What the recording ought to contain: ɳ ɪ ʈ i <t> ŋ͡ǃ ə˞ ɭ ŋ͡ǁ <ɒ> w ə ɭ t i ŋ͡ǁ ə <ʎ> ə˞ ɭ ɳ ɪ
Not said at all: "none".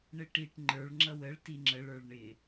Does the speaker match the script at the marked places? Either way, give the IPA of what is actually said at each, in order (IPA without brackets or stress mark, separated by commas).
ʈ, ʌ, ɭ